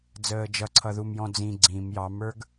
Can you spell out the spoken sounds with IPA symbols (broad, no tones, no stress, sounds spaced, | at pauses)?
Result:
d͡z əː d͡ʒ ʌ ǀʰ ʌ ð u m j ɔ̃ d͡z ĩ ɡ͡ǀ ĩ m j ɑ m ə˞ ɡ